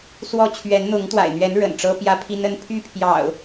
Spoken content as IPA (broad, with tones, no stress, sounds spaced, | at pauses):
s w ɔ˥˨ t͡ɕʰ ɥ ɛ˨˦ n n̪ ʊ˨˦ ŋ t̪ w a̰˨˩ ɪ̯ n̪ ɥ ɛ˨˦ n ɻ ə̰˨˩ n ʈ͡ʂ ɤ˦ p j ä˦ pʰ i˦ n ə˦ n pʰ y˥˨ pʰ j ɑ̰˨˩ ʊ̯